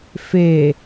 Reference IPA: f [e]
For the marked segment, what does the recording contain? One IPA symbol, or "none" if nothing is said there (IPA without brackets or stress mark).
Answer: e